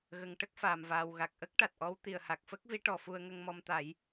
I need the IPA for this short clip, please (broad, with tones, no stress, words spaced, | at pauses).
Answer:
ɣə˨˩ŋ ʈə˦˥k̚faː˨˩mvaː˨˩w ɣa˨˩k̚ʔə˦˥k̚ ʈa˨˩t̚ʔɔ˧˥w t̪i˨˩ə̯ha˨˩k̚fə˦˥k̚vi˧˥ ʈɔ˨˩fu˧ə̯ŋə˧ŋ mɔ˧mt̪a˨˩˦j